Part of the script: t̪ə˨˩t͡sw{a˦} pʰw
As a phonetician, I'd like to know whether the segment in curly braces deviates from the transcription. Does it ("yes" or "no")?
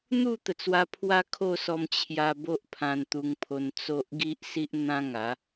yes